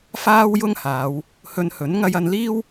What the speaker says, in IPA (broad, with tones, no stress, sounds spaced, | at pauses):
f aː˥ w j ʊ˥ ŋ h aː˨˧ w | h ɵ˧ n h ɵ˨˥ n ŋ ɐ˧ j ɐ˧ n l iː˥ w